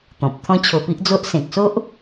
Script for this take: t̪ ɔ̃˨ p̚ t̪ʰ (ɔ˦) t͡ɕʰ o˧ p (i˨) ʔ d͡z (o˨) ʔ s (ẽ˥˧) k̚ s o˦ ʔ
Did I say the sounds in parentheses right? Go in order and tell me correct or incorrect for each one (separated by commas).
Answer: incorrect, incorrect, incorrect, incorrect